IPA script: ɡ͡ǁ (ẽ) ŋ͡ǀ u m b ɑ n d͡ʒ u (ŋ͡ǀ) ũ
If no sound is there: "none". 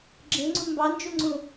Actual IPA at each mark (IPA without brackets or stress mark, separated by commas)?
ẽ, ŋ͡ǀ